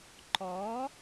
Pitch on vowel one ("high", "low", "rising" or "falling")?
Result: rising